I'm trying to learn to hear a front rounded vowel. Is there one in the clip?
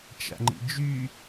yes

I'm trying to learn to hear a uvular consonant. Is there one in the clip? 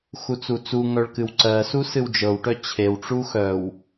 no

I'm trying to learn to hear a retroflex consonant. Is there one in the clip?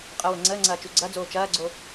no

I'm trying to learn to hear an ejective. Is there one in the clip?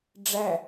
no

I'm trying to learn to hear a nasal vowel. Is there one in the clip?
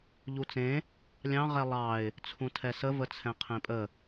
yes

